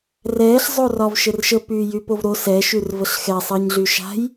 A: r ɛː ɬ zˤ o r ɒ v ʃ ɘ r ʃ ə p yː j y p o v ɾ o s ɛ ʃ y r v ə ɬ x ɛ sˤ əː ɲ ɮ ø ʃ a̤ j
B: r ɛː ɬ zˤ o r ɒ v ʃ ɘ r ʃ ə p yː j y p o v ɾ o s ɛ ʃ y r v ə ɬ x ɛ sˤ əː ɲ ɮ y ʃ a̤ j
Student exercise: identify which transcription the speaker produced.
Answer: B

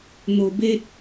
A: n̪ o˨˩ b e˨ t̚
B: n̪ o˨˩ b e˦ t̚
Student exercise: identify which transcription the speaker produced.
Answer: B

